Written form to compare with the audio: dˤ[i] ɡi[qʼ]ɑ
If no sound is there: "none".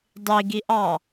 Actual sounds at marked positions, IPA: i, ʔ

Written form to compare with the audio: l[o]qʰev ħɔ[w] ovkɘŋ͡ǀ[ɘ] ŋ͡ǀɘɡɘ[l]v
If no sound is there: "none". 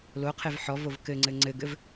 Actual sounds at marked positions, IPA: o, v, ɘ, none

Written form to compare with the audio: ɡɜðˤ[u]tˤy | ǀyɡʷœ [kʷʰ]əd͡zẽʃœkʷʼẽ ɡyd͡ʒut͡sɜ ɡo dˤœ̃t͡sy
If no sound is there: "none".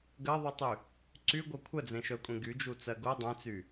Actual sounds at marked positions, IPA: y, kʷʰ

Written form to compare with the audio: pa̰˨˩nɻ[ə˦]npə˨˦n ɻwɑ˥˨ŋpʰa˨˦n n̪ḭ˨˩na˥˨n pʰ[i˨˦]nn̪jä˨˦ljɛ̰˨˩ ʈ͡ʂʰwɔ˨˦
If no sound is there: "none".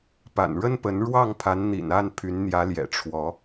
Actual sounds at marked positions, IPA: ə˦, y˨˦

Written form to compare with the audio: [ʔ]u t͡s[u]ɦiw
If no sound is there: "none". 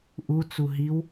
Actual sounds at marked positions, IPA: ʔ, u

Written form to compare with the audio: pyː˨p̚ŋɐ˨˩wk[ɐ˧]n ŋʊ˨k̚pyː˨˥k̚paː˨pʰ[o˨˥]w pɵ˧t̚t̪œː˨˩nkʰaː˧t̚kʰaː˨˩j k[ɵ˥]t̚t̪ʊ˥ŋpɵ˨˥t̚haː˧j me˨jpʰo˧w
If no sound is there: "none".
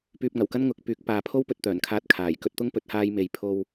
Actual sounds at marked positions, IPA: ɐ˧, o˥, ɵ˧

